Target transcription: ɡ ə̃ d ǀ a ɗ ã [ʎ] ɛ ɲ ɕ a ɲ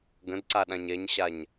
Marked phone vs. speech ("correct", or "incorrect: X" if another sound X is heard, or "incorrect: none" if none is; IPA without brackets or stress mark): incorrect: ɲ